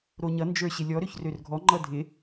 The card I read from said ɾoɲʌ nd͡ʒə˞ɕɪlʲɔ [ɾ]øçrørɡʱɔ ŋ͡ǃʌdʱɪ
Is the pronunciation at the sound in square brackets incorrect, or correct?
correct